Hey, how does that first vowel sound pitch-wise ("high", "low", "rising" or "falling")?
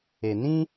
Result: low